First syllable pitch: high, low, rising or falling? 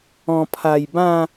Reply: low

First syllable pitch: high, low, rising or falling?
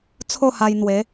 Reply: falling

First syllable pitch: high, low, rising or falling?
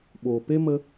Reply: low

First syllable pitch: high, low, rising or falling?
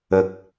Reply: low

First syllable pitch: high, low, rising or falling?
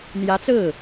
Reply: rising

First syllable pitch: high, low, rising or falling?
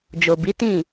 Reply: low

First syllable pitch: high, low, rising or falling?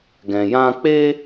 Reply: low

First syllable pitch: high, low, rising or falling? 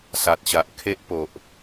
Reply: low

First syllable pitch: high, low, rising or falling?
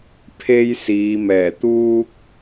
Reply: high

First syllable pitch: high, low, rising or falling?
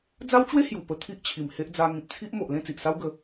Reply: high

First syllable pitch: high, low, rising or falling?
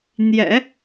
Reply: low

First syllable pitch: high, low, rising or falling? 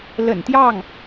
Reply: low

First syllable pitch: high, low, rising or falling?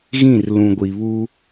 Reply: falling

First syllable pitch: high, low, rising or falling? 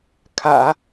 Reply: low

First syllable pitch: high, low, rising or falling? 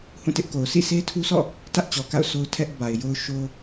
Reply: falling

